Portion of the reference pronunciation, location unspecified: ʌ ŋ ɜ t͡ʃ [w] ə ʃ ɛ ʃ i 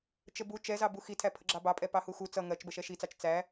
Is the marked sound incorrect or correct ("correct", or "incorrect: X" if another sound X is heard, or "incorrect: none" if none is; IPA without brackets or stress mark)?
incorrect: b